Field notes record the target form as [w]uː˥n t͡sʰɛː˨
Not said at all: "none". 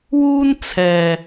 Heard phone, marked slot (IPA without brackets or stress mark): w